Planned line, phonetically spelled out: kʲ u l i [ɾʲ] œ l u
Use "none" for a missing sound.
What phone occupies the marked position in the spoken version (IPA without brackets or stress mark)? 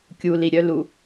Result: ɾʲ